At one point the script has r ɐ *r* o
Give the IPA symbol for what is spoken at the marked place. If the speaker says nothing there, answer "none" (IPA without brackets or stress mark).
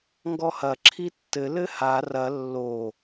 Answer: lː